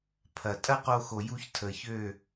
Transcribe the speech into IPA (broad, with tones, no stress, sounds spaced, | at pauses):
pʰ ɐ˨ tʼ ɐ˦ q o˧ x o˨ j u˧ ç tʰ ə˨ ç ø˦˨